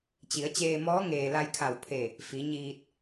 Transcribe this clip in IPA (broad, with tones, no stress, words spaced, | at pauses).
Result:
t͡ɕi˩˧ə̯t͡ɕeː˧mɔː˧˥ ŋeː˩la˧jkʰa˧˩wpʰe˧˩ | fi˩˧ ɲiː˧t̚